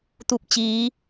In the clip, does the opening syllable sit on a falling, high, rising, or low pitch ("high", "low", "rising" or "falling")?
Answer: falling